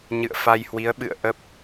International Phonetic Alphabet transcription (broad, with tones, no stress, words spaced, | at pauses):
ɲɨ̰˧˨ə̯fa˧jhwi˨˦ə̯ ɓɨ̰˧˨ə̯ʔə˦˥p̚